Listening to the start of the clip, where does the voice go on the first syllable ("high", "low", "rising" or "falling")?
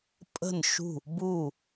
falling